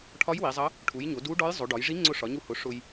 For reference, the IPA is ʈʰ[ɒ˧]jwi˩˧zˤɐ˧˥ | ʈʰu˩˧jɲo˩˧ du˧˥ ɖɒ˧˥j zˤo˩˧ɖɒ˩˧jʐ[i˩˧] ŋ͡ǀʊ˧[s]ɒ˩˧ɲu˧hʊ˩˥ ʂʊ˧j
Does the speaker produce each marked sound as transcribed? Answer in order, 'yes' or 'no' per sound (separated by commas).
no, no, no